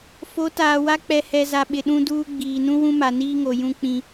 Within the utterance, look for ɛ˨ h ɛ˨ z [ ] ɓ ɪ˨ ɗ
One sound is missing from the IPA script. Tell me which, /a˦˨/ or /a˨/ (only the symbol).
a˨